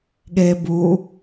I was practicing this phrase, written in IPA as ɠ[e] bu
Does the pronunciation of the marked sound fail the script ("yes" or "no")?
no